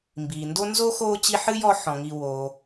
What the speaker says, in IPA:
m b iː˩ n d o˥ n z oː˥ x oː˦ t͡ɕ i˦ ħ ɨ˥ j ɔ˦ ħ ɔ̃˩ ŋ i˨ w oː˩

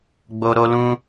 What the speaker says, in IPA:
ɡ͡b o˧ ɾ o˦ l ũ˦

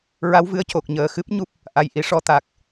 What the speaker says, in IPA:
ɹ a˧˥ w v ɨ˧ ə̯ c o˨˩ k̚ ɲ əː˨˩ x ɨ˦˥ p̚ ɲ u˦˥ p̚ | ʔ a˨˩ j ʔ i˨˩ ʂ ɔ˧˥ t̪ a˨˩ k̚

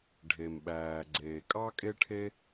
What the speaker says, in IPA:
ɖʱ e˩ m ɓ æː˩ ɡ͡ǀ eː˩ kʼ ɑ˥ kʼ e˥ ʈʰ e˥

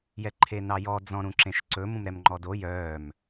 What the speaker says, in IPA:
j ɛ ǃʰ e n ɑ j ɔ d͡z ɔ̃ ɾ ũ ǁ ẽ ʃ ǀ ɵ m ũ m ɾ ɛ m ŋ͡ǃ ɔ d o j œː m

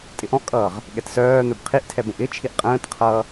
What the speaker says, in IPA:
tʼ ɪ ʔ ɔ̃ ʔ kʼ ʌː ʁ | ɠ ɛ t s œː n̪ œ b qʰ i ʔ tʰ ɛ b ə̃ ʔ ɪ t͡ʃʰ i ʔ qʼ ə̃ː t qʰ ʌː

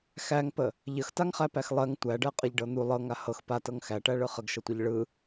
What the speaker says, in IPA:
x æ ŋ p ə | ʎ ə x t a ŋ χ æ p æ x lˠ ɜ ŋ tʷ æ ɖ ɜ qʼ ə ʎ ɖ ɤ n̪ u lˠ ɤ ŋ a h ɤ x p a t ɤ ŋ x æ ʈ æ ɭ ɯ χ ə ɡ ʃ ɤ tʷ i ʎ ɭ ɯ

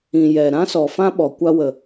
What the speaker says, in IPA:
ĩ˨ j ɛ˨ ɾ ã˦ s ɔ˨ f ã˦ ɓ ɔ˨ kʷ a˧ w ə˨

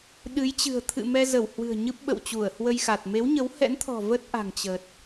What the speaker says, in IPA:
ɗ ɨ˨˦ j t͡ɕ ɨ̤˨˩ ə̯ t̪ʰ ɨ̰˧˨ m ɛ˧ z ə˧˩ w h w ɨ̤˨˩ ə̯ ɲ ɨ˦˥ p̚ ɓ ə̰˧˨ w t͡ɕ u˧˩ ə̯ h w ə˧ j x a˨˩ t̚ m e˨˦ w ɲ ə˨˦ w h ɛ̰˧˥ n t̪ʰ ɔ̤˨˩ v ə˦˥ t̚ ʔ a̤˨˩ ŋ t͡ɕ ə˨˩ t̚

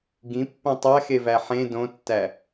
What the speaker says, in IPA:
ɡ ĩ pː õ tˤ æ x e v æ ħ ẽ d õ tː æ

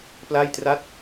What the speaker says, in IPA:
p l a˥˩ j t r a˥˩ t̚

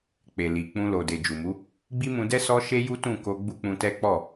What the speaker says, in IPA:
k͡p e˨ l i˨ k͡p ũ˧ l o˨ d e˨ d͡ʒ u˨ m u˨˦ | ɡ͡b i˦ m ũ˧ d ɛ˦ s ɔ˦ ʃ e˦ j u˦ t ũ˦˨ k o˧ ɡ͡b u˦ k͡p ũ˧ t ɛ˦ k͡p ɔ˦˨

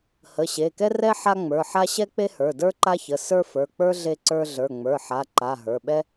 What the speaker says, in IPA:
h ə˩˧˩ ɕ e˩˧˩ k ɛ˥ r ɛ˥ ħ a˥ ŋ͡m ə˞˩˧˩ ħ a˥ ɕ ɛ˥ k͡p e˥ h ə˞˩˧˩ d ə˞˥ ǃ a˥ ç ə˩˧˩ s ə˞˥ f ə˞˩˧˩ k͡p ə˞˥ ɮ e˥ ǀ ə˞˥ ɮ ə˞˩˧˩ ŋ͡m ə˞˩˧˩ ħ a˩˧˩ ǃ a˩˧˩ ɦ ə˞˩˧˩ ɓ ɛ˥

